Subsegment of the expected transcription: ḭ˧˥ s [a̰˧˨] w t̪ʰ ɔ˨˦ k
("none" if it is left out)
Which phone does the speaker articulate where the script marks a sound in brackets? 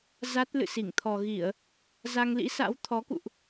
a̰˧˥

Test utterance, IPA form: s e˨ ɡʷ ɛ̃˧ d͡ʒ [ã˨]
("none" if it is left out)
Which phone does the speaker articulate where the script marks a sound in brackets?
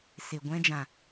ã˨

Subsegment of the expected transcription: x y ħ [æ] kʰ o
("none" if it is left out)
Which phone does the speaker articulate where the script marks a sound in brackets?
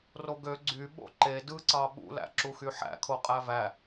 æ̰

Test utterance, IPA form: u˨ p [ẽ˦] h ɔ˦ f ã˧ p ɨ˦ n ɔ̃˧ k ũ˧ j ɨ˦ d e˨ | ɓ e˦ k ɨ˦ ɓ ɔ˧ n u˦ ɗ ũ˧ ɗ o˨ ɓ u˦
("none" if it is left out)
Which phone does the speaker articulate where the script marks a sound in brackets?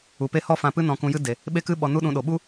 e˦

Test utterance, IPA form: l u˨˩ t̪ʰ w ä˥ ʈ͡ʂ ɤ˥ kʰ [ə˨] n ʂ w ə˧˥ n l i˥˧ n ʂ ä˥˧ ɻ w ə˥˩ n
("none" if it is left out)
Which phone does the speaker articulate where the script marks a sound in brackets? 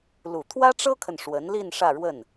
ə˨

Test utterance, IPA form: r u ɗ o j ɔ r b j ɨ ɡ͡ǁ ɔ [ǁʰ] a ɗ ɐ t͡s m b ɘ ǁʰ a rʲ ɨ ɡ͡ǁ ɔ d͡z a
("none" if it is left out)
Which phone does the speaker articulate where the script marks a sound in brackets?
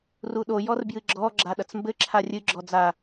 ɡ͡ǁ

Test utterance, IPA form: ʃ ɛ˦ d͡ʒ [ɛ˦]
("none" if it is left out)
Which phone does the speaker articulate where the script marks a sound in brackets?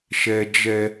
ɛ˦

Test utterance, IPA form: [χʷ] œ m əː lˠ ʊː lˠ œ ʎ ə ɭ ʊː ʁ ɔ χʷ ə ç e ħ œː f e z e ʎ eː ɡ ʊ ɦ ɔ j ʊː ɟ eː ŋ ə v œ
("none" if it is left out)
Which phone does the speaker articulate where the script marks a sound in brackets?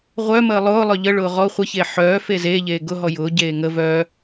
ʁʷ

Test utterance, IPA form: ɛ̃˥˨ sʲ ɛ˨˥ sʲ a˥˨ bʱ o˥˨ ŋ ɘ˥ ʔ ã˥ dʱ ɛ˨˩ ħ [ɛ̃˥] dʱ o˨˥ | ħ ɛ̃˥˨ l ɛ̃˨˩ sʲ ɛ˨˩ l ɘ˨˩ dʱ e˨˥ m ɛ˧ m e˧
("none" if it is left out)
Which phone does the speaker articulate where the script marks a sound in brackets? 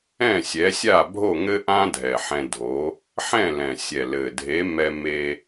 ɛ̃˧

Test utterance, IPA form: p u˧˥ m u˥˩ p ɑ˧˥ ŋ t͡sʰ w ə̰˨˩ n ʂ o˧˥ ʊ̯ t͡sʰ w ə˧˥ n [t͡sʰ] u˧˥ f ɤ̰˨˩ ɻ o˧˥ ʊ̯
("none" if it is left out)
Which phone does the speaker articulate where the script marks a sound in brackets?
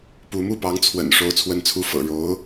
t͡sʰ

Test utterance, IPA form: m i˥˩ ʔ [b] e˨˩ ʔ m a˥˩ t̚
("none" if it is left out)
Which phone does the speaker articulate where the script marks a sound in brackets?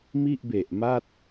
b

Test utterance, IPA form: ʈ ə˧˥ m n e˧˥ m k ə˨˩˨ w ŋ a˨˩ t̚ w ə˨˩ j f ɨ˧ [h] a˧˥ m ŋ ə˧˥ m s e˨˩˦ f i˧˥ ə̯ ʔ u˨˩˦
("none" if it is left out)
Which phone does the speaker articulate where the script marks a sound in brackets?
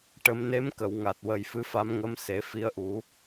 f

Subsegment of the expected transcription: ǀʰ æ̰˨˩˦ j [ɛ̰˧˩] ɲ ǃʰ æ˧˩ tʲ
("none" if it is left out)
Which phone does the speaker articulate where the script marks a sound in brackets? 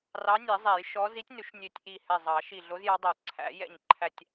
ɛ̰˧˩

